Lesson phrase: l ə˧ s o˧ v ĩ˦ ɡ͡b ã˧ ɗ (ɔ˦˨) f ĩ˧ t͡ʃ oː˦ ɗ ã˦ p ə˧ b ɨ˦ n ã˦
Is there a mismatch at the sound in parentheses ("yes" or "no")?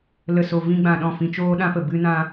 yes